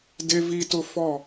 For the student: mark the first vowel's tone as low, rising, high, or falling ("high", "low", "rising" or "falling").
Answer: high